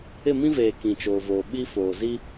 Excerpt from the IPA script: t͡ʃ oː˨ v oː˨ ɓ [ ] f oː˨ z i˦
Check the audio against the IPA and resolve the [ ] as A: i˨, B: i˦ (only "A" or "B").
B